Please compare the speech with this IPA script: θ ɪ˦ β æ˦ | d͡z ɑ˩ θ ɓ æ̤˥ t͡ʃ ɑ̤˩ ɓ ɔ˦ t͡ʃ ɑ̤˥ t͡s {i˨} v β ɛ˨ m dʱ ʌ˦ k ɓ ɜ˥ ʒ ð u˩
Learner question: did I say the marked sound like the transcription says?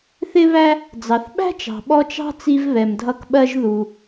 no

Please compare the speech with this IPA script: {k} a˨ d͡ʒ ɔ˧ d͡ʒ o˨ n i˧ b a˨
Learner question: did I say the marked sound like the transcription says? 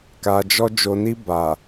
yes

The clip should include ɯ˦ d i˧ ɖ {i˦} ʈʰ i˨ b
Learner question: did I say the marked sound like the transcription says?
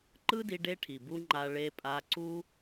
no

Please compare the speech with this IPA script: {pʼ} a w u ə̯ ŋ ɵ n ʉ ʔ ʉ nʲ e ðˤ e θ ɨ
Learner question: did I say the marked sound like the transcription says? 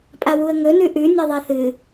yes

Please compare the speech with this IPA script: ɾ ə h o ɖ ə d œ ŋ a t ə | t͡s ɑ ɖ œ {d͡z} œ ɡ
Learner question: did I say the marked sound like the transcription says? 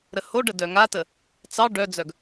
yes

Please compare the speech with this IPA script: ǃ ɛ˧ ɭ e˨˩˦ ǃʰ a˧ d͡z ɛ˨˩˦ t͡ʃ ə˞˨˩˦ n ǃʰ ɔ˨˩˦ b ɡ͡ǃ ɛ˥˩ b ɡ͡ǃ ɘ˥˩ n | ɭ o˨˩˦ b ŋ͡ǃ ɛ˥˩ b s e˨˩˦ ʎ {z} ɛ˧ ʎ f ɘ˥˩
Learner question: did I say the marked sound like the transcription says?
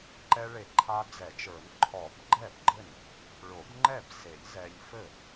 yes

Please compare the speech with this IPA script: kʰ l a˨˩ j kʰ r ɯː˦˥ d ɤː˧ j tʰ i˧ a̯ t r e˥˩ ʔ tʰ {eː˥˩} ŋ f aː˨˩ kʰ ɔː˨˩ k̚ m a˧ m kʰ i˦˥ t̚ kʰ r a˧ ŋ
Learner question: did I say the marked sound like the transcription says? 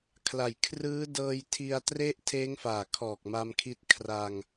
no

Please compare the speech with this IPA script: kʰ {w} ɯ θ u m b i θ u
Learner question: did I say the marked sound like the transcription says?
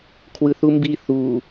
yes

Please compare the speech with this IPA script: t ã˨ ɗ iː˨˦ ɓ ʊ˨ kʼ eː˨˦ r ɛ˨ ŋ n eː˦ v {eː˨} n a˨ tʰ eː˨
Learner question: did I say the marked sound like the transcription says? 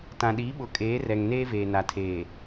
yes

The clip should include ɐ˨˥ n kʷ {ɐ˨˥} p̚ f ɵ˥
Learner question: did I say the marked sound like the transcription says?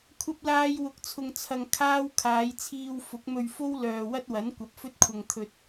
yes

